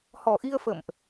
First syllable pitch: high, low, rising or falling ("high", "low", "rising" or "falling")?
low